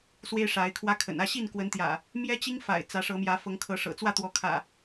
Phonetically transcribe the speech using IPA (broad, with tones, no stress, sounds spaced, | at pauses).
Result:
s w e˦ ɪ̯ ʂ a˨˦ ɪ̯ kʰ w ä˦ kʰ ə̰˨˩ n ä˥˨ ɕ i˥˨ n k w ə˨˦ n t̪ j ä̰˨˩ | m j ɛ˦ t͡ɕ i˦ ŋ f a̰˨˩ ɪ̯ t͡s ä˨˦ ʂ ɤ˨˦ m j ä˨˦ f ɤ˨˦ ŋ kʰ ɤ˨˦ ʂ ɤ̰˨˩ t͡s w ä˥˨ t̪ w ɔ˨˦ kʰ ä̰˨˩